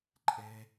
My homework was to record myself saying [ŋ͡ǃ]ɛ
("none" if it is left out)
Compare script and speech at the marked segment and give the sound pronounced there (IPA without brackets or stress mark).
ǃʼ